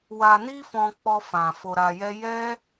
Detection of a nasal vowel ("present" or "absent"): present